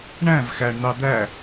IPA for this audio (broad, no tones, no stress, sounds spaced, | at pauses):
ɳ æ̃ v x æ ɳ n̪ ɑ d̪ æ